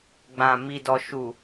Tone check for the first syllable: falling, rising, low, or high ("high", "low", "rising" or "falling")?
low